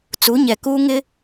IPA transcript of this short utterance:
t͡s u˨˦ ɲ ɛ˨ k uː˦ ŋ ɪ˦

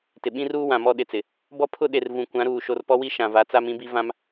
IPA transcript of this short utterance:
t ɪ˨ ɓ ĩ˦ r uː˦ w ã˨ m ɔ˦ ɗ ɪ˨ t͡s ɪ˨ | b ɔ˦ pʰ ʊ˦ ɗ e˨ r v ũ˨ kʷ ã˨˦ ɾ uː˨ ʃ o˨ r p ɔ˦ w i˦ ʃ ã˨ v a˨˦ t͡s a˦ m ĩ˦ b i˦ v ã˦ m

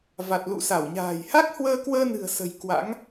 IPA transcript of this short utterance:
v a˨˩ t̚ l ṵ˧˨ s a˧˩ w ɲ a̤ː˨˩ j h a˦˥ k̚ h w əː˧ k w əː˧ n ɨ̤˨˩ ə̯ s ə̤˨˩ j k w a̰˧˥ ŋ

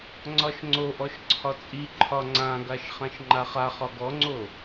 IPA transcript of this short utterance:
ŋ͡ǀ ɒ ʃ ŋ͡ǀ o ʔ ɔ ʃ ǀʰ ɒ t͡sʼ i ǃʰ ɒ ŋ͡ǀ ã ɡ a ʃ χ ã ʃ ŋ͡ǃ a χ a χ ɒ ɡ ɔ ŋ͡ǀ o

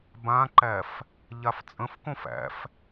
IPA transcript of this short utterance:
b ã ǃ æ f | ʎ a f t͡sʼ ə̃ f k õ f æ̰ f

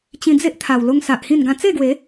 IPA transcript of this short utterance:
t͡ɕ ĩ˧ d͡z e˦ ʔ t̪ʰ a˨˩ w l o˧ ŋ s a˨ ʔ h ĩ˥˧ n ɡ ã˦ t͡s e˥˧ ɡ w e˨˦

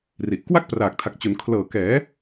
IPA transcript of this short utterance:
r i˨˩ ʔ k w a˥˩ k̚ p r aː˨˩ k̚ tʰ a˨˩ k̚ t͡ɕ o˩˦ n kʰ l ɤː˨˩ k ɛː˩˦

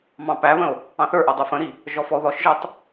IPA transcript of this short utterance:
m ɑ̃ p æ β ə̃ o̯ | ɑ̃ θ ə˞ ʔ ə˞ dˤ ə˞ f ə̃ ɾ i | ʒ ɔ f ɔ o̯ ð ɔ ʃ ʒ ə˞ tˤ

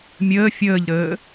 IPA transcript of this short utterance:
mʲ əː fʲ əː ʎ ɾ əː

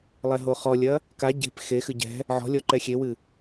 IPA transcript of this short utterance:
lˠ ɛ ɦ o χ ɔ lʲ ɐ | k a ɟ e̤ p x e x ɨ ɟ ɛ̤ | ʕ ɔ̤ lʲ ɔ ǃ ɛ xʲ e w ɨ

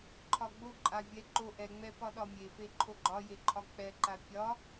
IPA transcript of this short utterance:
ǃʰ ɒ ɡ͡b o ǃʼ a vʲ ɛ ǃ o ʔ ɛ ŋ͡m ɛ p ɒ ɗ ɒ mʲ e f e ǃʰ o ɡ͡ǃ ɒ j e ǃʰ ɒ k͡p ɛ ǃ a pʲ ɒ

